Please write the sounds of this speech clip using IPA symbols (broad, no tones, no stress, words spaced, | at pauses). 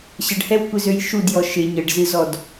ɕəɖhɛwkʷɪzøj ʃudjɔ ʃɪ ɲəɖzɨzɔd